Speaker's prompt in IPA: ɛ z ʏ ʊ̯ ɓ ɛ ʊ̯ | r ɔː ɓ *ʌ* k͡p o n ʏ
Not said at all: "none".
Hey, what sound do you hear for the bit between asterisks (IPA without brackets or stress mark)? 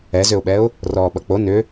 ʌ